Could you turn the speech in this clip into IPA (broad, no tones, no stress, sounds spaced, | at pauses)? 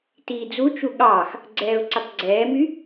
t iː d͡z u t͡ʃ u ɠ ɑː x | ɡ͡ǀ ɛː ʊ̯ ǀ ɘ tˤ ɡ͡ǀ ɛː m y